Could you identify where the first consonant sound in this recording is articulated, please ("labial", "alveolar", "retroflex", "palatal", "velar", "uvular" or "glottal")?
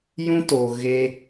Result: palatal